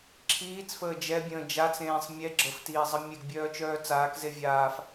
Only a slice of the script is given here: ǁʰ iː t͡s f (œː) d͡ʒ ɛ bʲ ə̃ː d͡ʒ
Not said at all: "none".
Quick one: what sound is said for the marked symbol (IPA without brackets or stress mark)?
əː